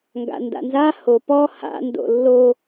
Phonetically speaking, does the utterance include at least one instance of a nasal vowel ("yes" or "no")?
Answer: no